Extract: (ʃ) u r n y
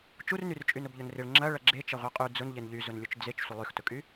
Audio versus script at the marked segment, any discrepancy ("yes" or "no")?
yes